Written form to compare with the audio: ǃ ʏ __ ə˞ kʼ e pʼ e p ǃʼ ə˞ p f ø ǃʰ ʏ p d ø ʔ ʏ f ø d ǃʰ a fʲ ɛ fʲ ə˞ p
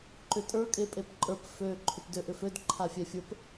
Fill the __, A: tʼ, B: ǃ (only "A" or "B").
A